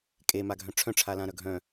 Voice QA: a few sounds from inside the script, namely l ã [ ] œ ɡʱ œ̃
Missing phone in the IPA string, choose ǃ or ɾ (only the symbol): ɾ